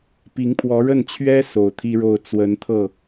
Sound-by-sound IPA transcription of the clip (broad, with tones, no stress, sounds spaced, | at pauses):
p i˧˥ ŋ pʰ w ɔ˧˥ ɻ ə˥˩ n t͡ɕʰ ɥ ɛ˥ s o˨˩ ʊ̯ t̪ʰ i˥ ɻ o˥˩ ʊ̯ t͡s w ə˧˥ n t̪ʰ ɤ˥˩